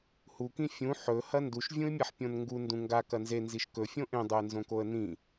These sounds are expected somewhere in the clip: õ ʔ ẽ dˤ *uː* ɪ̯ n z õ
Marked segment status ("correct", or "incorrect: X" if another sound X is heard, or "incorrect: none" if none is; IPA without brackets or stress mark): incorrect: u